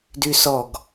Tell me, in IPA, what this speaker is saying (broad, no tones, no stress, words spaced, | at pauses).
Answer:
dysɔɡ